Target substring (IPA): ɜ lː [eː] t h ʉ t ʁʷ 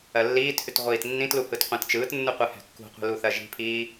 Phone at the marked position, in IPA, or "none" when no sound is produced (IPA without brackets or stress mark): iː